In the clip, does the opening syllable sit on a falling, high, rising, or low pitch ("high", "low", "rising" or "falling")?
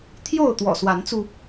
falling